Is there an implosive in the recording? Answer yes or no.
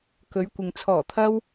no